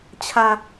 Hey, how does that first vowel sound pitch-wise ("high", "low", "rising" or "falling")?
low